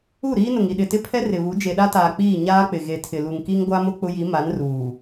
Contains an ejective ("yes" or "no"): no